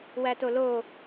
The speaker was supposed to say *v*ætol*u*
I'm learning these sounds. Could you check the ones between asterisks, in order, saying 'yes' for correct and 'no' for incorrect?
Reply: no, no

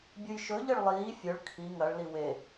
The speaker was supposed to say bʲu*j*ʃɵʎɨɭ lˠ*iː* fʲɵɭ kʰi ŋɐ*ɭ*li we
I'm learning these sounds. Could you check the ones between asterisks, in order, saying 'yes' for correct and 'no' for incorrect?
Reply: yes, yes, yes

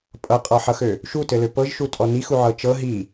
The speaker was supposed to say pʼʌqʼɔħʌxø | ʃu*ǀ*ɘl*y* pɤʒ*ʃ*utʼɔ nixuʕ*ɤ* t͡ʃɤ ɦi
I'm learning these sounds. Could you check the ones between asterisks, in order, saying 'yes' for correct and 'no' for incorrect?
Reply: no, no, yes, yes

